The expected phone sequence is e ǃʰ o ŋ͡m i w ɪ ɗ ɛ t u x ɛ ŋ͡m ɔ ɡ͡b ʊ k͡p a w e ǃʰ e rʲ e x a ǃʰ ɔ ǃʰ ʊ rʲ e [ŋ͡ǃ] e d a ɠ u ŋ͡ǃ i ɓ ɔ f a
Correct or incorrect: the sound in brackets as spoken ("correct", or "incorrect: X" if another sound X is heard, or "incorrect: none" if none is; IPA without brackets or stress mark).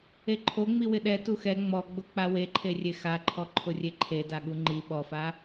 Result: incorrect: ǃʰ